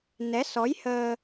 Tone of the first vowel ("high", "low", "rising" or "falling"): rising